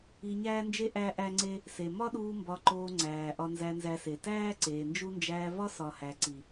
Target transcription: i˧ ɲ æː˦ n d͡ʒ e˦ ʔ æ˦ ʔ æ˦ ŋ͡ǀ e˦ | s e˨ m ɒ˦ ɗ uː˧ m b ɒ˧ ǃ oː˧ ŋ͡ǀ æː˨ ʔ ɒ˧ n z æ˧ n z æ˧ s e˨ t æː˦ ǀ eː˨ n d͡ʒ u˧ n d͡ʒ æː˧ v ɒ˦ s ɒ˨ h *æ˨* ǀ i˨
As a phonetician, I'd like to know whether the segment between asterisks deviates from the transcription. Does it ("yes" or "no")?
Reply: no